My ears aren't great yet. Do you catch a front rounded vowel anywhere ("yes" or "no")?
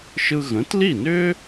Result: yes